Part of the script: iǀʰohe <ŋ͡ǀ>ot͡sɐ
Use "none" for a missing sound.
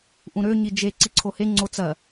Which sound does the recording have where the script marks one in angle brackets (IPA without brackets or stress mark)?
ŋ͡ǀ